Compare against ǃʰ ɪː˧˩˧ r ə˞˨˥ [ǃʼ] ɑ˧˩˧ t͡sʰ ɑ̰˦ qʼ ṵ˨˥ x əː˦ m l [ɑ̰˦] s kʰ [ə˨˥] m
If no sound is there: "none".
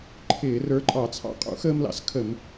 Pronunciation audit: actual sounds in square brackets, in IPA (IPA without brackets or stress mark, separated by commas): ǃʼ, ɑ̰˦, ə˧˩˧